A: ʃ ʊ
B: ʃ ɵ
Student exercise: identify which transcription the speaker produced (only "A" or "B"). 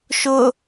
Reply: A